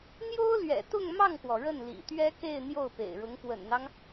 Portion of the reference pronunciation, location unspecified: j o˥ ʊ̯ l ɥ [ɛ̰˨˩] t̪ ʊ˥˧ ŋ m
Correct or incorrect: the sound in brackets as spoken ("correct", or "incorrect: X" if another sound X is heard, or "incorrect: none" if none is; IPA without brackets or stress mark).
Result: correct